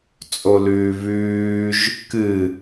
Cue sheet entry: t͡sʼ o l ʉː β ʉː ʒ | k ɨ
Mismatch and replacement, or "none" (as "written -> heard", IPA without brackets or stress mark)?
none